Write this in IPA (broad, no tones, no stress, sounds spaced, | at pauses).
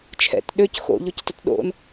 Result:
t͡ʃʰ ɛ̰ t ɗ ø c x o̰ ʎ o c t ə t ɗ o̰ n